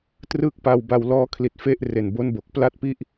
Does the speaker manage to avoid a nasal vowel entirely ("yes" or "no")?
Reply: yes